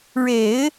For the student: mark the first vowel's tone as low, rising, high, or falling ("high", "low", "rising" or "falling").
low